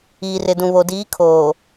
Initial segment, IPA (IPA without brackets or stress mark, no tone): iː